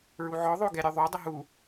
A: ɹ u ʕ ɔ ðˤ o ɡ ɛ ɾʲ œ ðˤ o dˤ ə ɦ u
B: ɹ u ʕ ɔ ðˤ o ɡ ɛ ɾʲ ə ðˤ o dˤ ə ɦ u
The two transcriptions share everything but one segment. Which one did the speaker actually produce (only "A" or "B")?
A